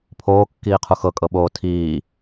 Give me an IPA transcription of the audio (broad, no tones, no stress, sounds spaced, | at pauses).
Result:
pʰ oː kː iː qʰ u x ɤ kʼ ɤ ɓ oː tʰ iː